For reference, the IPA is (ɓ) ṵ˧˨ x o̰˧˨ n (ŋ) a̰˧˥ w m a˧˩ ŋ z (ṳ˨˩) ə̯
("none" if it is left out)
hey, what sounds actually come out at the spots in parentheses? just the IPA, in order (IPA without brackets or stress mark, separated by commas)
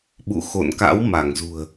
ɓ, k, ṳ˨˩